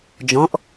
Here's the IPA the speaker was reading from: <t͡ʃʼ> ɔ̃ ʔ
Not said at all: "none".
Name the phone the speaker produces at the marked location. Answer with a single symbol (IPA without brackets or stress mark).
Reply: d͡ʒ